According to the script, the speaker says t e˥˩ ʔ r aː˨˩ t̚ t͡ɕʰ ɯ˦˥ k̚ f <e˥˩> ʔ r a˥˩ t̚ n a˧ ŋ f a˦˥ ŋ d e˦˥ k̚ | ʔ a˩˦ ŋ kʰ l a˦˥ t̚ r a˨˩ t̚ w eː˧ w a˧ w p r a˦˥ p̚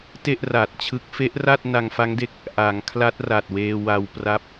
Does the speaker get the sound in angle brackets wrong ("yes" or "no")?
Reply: yes